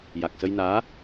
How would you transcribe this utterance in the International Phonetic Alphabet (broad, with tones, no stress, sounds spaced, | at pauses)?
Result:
j a˨˩ k̚ s ə˧ j n aː˧˥